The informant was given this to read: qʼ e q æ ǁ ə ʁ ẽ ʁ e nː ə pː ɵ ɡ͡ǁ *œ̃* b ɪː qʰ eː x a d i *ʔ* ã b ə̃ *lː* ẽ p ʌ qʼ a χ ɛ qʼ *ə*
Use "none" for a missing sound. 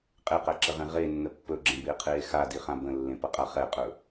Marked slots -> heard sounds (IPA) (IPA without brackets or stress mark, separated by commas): ə̃, χ, lː, ɵ